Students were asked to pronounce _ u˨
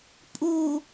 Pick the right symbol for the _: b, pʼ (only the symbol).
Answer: pʼ